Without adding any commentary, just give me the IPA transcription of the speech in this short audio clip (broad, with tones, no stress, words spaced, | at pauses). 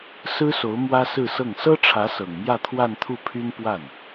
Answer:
sɹ̩˥so˧˥ʊ̯ mwä˥sɹ̩˥˧sɤ˥˩ŋ sɤ˥ʈ͡ʂʰä˧˥ sɤ˨˩ŋmjä˥˧ t̪ʰwa˥˧nt̪ʰu˥˩pʰy˥n pwa˥˩n